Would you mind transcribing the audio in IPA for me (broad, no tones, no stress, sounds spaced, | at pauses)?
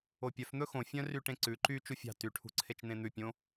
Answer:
o pʲ œ f n̪ ɵ x õ fʲ œ̃ r y ʈ ẽ ǀ ʉ ǃ y t͡ʃ u fʲ ɑ̤ t y ʈʰ ṳ ǀʰ e t͡ʃ n̪ ẽ n̪ ʉ pʲ õ